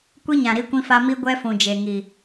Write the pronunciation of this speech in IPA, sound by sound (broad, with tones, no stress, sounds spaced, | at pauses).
kʷ i˦ ɲ ã˨ ɾ i˦ kʷ ĩ˦ f a˦ m i˦ ɡʷ ɛ˦ f ũ˨ d͡ʒ e˨ ŋ i˨